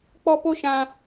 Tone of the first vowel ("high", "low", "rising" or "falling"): high